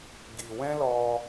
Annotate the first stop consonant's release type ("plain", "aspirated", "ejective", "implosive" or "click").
plain